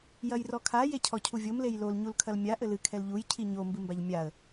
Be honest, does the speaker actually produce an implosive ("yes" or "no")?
no